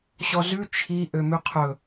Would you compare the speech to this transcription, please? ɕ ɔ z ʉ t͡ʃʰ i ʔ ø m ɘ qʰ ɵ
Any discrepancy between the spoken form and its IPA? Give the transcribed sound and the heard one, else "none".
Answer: ɘ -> ʉ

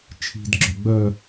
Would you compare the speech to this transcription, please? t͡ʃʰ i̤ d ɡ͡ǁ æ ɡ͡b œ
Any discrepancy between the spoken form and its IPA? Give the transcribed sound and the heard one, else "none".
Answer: æ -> œ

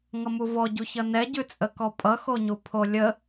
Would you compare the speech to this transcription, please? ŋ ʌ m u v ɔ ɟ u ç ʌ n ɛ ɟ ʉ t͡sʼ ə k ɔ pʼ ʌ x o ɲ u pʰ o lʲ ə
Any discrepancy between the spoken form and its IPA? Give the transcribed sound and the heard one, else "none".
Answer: none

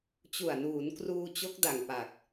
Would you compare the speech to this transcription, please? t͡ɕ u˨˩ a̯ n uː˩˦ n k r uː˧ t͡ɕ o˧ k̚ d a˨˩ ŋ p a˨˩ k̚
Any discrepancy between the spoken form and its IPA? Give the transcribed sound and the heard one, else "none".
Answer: o˧ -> o˦˥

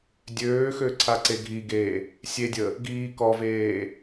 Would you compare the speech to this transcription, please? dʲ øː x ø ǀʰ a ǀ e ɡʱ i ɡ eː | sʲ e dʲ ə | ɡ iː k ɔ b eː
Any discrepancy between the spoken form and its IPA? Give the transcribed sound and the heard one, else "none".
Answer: b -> v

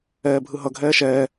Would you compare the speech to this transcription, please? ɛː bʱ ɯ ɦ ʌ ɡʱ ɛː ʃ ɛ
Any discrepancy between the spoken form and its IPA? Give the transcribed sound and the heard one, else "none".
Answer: ɛ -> ɛː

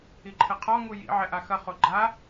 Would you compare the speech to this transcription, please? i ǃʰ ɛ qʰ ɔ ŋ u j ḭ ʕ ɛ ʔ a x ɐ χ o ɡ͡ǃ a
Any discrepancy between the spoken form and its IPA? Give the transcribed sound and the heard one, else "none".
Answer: none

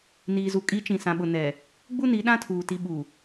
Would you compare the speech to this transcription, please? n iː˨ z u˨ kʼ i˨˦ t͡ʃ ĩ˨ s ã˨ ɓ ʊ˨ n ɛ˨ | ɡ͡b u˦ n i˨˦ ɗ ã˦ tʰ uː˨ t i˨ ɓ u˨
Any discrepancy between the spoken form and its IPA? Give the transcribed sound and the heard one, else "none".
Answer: none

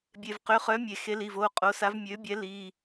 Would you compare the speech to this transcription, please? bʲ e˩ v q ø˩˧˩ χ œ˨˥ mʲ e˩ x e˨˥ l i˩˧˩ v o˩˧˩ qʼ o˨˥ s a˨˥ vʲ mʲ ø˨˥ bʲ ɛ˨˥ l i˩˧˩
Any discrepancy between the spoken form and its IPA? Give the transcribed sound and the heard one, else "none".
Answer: vʲ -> v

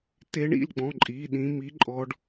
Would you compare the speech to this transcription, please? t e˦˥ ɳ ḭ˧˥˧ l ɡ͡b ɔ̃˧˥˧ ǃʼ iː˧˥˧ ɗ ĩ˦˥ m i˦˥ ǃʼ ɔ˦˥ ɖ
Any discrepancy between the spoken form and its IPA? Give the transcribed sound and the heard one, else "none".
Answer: none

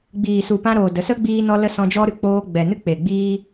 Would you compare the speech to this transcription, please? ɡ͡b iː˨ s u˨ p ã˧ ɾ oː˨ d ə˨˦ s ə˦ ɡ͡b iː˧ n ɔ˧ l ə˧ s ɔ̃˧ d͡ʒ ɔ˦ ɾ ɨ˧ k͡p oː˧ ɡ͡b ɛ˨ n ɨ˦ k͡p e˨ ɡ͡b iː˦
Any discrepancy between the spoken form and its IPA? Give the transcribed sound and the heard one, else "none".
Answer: none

